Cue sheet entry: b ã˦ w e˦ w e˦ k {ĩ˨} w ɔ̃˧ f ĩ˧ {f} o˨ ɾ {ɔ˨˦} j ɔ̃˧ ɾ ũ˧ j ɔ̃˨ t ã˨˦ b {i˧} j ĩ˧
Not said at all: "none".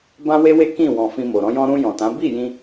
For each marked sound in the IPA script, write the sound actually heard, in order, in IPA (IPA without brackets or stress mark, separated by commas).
ĩ˦˨, m, ɔ̃˨˦, i˦˨